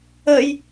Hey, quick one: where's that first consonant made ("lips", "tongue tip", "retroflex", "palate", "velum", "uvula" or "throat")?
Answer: palate